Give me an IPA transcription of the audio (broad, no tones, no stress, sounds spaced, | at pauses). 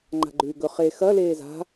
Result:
ŋ͡ǃ a̤ ɡ͡ǃ ʉː ɡ ɵ χ e x ɐ l eː z a̤